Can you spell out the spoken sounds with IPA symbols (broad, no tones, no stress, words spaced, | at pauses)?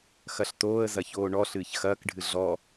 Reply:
xɐɬtoːə̯zɐ çoːɳɔ ɬɨːçxɐːkɖʱɨ ɮɔ